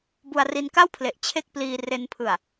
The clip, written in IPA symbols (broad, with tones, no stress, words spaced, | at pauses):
bu˧a̯ri˧nka˥˩wpʰle˨˩ʔ t͡ɕʰe˥˩k̚pliː˧ re˧npʰɯ˨˩a̯